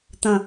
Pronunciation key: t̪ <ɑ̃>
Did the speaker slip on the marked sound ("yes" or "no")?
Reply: yes